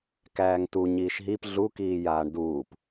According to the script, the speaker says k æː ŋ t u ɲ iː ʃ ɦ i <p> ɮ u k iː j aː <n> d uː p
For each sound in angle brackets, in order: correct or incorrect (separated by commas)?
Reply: correct, incorrect